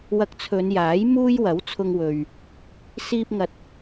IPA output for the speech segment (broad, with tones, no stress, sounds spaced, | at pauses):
w ɐ˧ k̚ t͡sʰ ɵ˨˧ n j aː˨˥ j m uː˥ j w ɐ˨˥ w t͡sʰ ʊ˧ ŋ w ɵ˨ ɥ | s iː˧ p̚ ŋ ɐ˨˥ t̚